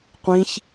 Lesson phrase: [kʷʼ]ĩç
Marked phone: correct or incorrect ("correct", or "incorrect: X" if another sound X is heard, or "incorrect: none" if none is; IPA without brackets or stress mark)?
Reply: incorrect: qʷ